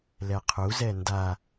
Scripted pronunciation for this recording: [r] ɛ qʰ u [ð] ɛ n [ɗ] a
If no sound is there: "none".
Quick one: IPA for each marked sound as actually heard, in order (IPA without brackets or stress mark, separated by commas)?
l, z, d